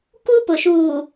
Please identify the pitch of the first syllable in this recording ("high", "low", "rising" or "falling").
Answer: high